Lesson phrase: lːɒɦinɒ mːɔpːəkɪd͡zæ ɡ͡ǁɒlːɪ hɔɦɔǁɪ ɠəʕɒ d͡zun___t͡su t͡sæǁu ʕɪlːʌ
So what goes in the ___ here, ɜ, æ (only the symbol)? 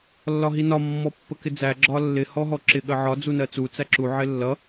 ɜ